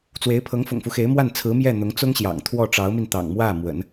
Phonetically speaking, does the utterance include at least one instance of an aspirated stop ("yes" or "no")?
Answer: yes